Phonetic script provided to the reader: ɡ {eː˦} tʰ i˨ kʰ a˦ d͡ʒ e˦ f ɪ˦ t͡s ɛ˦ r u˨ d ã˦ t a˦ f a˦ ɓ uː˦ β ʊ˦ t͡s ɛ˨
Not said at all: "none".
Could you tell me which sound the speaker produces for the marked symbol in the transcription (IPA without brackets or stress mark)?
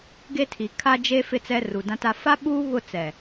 e˦